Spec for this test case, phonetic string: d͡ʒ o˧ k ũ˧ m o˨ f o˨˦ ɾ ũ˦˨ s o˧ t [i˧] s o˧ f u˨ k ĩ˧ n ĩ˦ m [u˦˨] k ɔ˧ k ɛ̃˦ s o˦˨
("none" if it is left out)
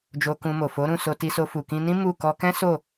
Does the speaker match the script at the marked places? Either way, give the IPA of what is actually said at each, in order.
i˧, u˦˨

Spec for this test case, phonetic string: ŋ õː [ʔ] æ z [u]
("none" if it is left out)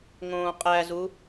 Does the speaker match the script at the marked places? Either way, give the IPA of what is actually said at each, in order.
qʼ, u

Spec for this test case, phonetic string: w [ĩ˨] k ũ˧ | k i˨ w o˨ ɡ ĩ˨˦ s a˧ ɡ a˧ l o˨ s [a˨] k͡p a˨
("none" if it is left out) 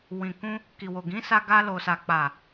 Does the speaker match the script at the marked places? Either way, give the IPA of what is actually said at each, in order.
ĩ˨, a˨

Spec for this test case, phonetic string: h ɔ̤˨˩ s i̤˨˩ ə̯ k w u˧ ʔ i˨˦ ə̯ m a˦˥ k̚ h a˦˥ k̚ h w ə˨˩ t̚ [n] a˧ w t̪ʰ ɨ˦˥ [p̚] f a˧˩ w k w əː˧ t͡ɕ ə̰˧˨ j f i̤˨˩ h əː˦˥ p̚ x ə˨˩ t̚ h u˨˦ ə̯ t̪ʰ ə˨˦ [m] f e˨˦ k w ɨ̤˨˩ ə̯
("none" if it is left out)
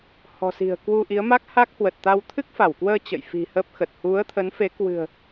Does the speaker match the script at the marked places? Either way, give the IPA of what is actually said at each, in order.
t̪, k̚, n

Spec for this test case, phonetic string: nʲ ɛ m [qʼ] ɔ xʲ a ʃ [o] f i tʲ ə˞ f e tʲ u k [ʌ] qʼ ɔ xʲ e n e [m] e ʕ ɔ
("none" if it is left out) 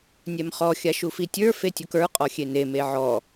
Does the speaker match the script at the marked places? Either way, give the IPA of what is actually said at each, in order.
χ, u, ə˞, m

